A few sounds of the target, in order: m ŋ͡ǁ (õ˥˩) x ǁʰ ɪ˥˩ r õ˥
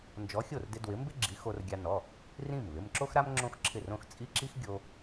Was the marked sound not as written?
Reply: yes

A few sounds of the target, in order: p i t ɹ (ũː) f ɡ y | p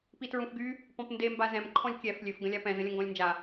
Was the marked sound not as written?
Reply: yes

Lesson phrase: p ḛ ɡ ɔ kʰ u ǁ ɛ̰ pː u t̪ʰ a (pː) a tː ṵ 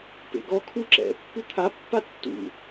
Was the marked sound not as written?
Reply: no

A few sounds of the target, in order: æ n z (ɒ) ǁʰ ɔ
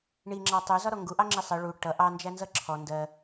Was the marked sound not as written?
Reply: yes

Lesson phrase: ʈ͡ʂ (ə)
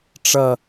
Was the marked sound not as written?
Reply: yes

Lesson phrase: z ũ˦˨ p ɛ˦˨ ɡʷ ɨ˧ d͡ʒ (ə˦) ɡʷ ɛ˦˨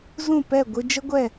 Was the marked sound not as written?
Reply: no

